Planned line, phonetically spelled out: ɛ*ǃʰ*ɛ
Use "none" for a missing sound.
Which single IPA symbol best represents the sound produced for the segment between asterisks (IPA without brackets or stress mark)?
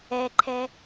ǃʰ